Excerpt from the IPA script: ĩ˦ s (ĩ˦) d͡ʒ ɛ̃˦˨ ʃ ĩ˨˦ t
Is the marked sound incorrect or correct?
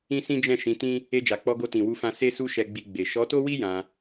correct